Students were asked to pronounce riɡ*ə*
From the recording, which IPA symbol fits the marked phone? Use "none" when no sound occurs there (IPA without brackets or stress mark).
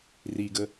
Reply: ə